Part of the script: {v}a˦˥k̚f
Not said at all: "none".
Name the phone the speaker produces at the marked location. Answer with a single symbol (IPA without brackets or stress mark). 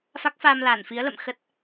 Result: f